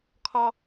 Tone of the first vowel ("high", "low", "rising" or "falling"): high